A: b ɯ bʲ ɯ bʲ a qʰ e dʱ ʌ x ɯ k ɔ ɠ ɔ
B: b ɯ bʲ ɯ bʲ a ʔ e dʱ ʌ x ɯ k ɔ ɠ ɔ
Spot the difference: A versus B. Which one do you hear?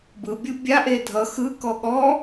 B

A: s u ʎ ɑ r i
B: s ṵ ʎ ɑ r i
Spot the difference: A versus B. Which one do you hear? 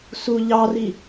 A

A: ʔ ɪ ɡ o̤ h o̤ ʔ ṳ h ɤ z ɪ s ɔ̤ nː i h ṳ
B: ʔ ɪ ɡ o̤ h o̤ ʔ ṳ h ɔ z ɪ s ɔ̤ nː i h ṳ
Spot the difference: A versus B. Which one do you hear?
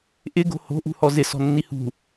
B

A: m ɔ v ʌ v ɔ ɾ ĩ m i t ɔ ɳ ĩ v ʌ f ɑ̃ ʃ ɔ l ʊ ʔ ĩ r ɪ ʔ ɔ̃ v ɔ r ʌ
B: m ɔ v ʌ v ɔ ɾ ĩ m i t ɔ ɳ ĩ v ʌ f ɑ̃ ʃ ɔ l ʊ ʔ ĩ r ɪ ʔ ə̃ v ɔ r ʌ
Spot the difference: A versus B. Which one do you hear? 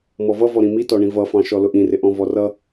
A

